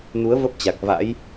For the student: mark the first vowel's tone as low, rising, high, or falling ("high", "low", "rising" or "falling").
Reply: rising